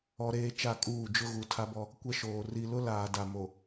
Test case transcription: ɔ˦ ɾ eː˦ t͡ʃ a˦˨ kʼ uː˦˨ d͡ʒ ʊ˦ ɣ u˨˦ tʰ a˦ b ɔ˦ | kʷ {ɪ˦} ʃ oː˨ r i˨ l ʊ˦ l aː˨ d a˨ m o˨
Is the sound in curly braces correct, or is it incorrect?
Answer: incorrect